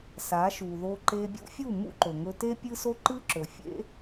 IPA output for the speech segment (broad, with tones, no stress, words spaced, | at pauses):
sa˨˦ʃu˨ðo˧ ǃe˧bʲṵ˦fʲu˦˨ mṵ˦ǃɵ˨ŋɵ˧ te˦pʲɨ˦so˦ ǃɨ˦ǁɵ˨fʲḛ˦